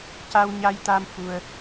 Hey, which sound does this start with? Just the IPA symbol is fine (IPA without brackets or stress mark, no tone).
c